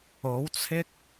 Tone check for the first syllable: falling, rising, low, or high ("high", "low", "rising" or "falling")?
rising